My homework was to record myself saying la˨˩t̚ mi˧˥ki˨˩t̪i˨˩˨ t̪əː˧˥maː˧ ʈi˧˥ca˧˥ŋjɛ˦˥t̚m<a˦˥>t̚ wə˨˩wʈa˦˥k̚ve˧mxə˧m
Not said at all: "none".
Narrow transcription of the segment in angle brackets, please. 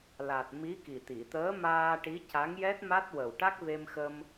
a˦˥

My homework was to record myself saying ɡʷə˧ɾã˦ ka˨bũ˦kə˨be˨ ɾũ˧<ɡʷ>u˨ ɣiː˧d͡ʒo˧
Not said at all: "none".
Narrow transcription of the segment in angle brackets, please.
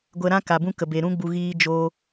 ɡ͡b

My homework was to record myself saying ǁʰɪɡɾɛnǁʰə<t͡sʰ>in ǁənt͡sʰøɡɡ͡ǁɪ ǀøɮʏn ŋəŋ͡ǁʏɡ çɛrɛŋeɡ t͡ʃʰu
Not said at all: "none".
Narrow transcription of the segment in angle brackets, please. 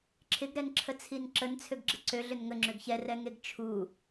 t͡sʰ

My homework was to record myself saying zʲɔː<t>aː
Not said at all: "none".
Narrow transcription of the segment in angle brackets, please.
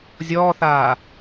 θ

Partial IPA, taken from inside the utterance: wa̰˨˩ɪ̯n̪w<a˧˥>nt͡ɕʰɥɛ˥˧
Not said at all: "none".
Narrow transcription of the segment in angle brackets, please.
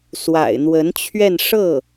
ə˧˥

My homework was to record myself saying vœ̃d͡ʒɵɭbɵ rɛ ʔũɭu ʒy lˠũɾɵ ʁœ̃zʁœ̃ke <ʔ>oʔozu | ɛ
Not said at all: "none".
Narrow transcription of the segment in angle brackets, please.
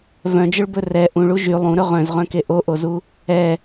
ʔ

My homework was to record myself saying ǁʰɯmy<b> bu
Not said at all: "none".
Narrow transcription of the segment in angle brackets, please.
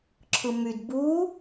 d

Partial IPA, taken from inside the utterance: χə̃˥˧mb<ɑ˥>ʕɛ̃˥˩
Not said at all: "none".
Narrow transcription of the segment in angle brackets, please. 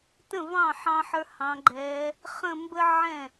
ə˥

